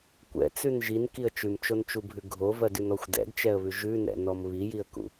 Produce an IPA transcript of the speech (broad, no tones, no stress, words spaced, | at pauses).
kʷɛ̰t͡sʉn ʒinkiə̯ t͡ʃʉmt͡ʃont͡ʃubʱʉ ɡʱovɜdʉnɔxʷ dɛ̰dt͡ʃɛə̯βʉ ʒʉnɛ̰nɔm βijiə̯kṵ